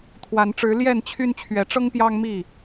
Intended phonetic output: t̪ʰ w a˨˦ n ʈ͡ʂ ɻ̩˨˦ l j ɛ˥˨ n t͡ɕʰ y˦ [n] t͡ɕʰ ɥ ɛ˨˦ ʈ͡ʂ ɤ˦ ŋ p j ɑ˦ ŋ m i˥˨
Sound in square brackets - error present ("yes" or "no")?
no